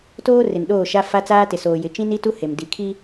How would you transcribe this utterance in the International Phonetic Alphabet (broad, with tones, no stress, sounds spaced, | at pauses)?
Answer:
t oː˦ r ɪ˨ n ɗ oː˦˨ ʃ a˦ f a˦ t͡s aː˦ t ɪ˨ s oː˨ j ɪ˨ t͡ʃ ĩ˦ n i˦ t u˦ h e˨ m d i˨ kʰ i˦